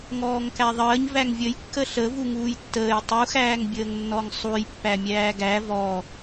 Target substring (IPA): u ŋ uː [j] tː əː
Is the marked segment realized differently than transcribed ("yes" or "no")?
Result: no